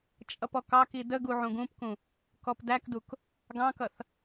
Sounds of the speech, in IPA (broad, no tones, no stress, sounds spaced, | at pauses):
t͡ʃʼ ʌ p ɔ k ɑ k i d ə ɡ u ʕ ũ ɡ ũ p k ũ | k ɔ p d æ k d u k | ɡ ɑ̃ k ʌ θ